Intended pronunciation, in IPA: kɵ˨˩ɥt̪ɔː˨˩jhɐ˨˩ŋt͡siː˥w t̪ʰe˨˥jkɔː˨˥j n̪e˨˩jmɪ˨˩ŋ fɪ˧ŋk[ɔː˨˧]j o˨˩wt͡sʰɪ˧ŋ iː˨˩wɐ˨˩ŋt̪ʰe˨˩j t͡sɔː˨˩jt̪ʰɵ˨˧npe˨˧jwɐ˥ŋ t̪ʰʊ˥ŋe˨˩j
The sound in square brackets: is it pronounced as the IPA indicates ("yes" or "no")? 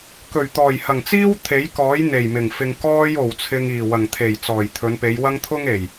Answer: no